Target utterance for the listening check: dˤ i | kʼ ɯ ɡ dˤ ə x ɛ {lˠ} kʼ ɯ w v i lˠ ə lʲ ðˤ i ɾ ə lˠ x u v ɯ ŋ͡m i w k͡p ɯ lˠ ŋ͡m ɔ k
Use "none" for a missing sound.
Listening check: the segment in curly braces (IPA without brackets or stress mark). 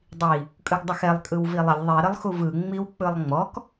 lˠ